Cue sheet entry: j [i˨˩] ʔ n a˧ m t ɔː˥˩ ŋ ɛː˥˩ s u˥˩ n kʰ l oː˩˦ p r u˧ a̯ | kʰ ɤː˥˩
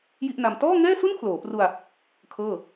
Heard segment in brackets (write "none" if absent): i˥˩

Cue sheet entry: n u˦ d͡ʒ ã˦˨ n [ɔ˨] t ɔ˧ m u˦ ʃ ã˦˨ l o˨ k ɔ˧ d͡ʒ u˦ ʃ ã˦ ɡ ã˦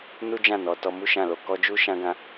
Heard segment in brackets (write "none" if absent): ɔ˨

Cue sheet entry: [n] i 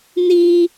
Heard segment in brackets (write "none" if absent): n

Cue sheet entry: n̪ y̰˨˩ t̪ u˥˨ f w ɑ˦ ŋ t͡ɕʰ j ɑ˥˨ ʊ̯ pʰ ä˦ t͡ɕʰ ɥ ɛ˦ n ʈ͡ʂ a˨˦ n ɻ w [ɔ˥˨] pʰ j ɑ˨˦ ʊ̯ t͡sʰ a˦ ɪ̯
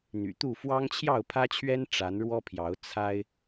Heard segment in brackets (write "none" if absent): ɔ˦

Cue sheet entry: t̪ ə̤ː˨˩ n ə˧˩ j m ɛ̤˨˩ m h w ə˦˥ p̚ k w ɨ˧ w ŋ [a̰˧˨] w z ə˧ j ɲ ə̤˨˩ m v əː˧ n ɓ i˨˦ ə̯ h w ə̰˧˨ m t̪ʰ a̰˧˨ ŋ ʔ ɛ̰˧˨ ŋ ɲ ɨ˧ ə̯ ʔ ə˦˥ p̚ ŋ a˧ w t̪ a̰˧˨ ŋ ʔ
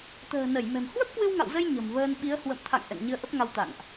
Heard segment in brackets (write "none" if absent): a̰˧˨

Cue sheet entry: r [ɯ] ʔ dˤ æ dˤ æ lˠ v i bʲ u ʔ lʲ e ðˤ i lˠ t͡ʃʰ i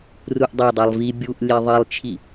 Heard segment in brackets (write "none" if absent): u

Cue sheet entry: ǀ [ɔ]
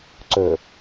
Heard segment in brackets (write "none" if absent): ɵ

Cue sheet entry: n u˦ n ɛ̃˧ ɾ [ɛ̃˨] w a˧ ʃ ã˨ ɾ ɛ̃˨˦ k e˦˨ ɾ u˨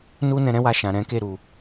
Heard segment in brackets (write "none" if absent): ɛ̃˦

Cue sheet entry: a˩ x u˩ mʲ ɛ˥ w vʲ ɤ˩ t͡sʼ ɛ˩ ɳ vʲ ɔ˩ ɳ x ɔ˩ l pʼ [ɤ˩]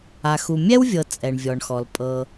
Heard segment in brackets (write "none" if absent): ɤ˩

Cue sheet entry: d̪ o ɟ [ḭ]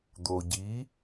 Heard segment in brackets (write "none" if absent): i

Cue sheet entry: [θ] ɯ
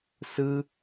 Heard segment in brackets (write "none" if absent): s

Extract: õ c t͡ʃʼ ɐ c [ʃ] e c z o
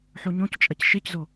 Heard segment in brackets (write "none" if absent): ʃ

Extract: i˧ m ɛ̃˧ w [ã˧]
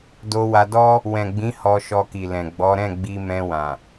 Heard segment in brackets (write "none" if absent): ã˨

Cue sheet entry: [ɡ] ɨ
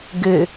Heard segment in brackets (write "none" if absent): ɡ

